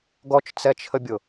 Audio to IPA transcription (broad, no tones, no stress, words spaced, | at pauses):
ɡɔt͡ʃt͡sɛt͡ʃʰəbʲʊ